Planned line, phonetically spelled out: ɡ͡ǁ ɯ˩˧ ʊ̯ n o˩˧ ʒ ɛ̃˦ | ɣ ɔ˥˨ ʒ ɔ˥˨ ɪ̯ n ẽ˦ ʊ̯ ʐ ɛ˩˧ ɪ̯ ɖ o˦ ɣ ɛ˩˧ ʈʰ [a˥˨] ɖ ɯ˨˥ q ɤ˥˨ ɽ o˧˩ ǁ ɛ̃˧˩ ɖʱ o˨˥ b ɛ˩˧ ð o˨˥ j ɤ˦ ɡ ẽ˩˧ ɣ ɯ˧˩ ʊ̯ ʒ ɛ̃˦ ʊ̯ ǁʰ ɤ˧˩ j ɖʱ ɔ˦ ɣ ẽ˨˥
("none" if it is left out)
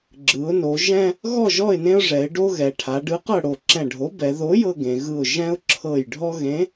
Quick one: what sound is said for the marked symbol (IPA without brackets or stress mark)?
a˩˧